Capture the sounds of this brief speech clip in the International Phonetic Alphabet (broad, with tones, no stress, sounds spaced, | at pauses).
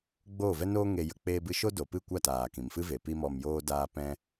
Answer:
ɡ͡b oː˦˨ v ɛ˦ n oː˦ ŋ e˧ j ə˧ k͡p eː˦ b ɨ˦ ʃ o˦ d o˨ p ɨ˦˨ kʷ a˦˨ t aː˨ k ĩ˨ m f ɨ˦ v e˨ p i˦ m ɔ˧ m j oː˦ d aː˦ p ɛ̃˦